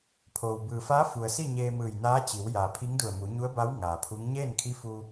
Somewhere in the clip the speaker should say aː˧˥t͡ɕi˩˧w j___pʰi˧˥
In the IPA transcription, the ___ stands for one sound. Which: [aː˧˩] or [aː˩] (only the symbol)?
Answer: aː˩